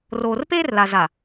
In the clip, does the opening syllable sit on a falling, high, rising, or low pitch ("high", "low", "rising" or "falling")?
low